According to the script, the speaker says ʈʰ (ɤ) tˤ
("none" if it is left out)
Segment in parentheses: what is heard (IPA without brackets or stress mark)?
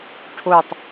o